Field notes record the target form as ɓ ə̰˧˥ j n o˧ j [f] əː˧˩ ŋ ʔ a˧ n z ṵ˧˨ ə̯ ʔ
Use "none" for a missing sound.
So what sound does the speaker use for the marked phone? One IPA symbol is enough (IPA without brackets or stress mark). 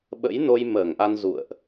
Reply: m